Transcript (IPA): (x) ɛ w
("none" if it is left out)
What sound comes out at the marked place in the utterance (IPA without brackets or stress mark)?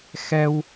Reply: x